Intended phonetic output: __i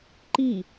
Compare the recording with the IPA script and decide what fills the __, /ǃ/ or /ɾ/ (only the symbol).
ǃ